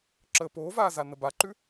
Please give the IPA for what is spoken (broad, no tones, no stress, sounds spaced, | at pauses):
ǁ əː p oː v aː z a n ə b a ǃ ʉ